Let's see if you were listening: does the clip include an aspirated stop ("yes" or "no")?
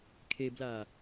yes